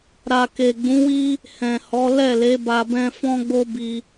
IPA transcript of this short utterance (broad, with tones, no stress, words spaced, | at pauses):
ɾa˨ke˨ ɡ͡bũ˨˦wi˦ | hɛ̃˨hɔ˨˦ lɛ˦˨le˨˦ ba˧bɛ̃˦ fɔ̃˦ɡ͡bo˦bi˧